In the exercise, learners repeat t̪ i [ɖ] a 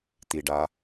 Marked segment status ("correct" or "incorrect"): correct